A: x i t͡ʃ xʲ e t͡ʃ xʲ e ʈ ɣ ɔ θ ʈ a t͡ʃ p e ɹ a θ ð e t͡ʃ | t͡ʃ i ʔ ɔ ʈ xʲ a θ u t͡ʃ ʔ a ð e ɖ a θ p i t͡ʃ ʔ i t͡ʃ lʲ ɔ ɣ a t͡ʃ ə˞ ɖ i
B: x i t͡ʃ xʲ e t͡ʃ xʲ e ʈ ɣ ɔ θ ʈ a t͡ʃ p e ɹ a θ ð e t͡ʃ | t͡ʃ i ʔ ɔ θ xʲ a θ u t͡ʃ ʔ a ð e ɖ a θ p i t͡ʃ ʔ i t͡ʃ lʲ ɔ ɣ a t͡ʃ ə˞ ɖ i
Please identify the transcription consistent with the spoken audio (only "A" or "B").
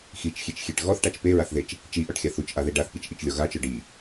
A